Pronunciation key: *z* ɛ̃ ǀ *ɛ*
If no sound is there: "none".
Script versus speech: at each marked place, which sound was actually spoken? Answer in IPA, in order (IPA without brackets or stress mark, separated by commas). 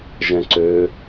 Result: ʒ, ø